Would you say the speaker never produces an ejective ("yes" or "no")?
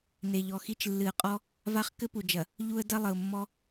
no